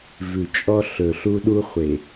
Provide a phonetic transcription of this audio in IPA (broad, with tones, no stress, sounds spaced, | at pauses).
v ʉ˨ t͡ʃʼ ɔ˦ ɬ ɵ˨ ɬ u˦ ɗ u˦ χʷ e˨